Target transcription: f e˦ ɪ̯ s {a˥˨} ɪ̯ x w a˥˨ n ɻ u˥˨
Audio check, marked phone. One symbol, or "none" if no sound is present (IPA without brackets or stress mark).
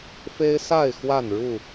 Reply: a˥˨